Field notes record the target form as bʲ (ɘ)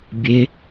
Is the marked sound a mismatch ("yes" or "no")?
yes